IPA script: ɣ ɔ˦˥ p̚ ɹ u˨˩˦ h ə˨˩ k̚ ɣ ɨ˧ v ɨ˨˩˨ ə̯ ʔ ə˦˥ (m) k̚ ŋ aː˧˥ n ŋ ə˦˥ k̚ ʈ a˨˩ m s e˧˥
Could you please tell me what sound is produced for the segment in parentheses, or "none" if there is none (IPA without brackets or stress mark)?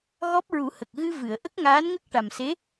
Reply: none